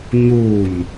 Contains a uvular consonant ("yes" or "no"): no